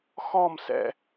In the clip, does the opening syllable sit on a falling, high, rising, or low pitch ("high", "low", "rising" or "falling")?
falling